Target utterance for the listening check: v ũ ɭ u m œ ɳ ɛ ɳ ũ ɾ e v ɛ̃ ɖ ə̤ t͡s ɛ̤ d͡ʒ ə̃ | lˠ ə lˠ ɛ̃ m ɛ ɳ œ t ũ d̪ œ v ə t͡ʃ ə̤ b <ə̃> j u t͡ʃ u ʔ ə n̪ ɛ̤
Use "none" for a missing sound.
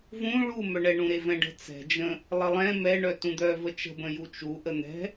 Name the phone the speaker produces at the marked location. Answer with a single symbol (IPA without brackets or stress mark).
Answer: ə̃